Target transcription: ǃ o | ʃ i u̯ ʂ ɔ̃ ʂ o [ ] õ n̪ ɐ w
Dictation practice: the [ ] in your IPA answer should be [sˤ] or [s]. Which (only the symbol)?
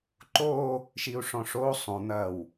sˤ